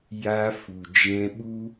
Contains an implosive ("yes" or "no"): yes